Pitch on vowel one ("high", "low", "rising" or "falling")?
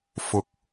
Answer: low